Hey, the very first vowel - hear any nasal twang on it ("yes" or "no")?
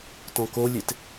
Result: yes